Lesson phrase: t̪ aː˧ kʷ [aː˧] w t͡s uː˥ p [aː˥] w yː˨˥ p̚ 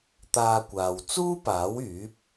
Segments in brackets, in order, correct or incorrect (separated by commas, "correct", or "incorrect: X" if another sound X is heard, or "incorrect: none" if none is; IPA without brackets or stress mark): incorrect: aː˨, incorrect: aː˨˥